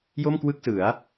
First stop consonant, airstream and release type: plain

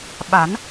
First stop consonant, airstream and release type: implosive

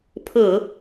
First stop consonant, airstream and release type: aspirated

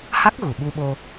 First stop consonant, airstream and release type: plain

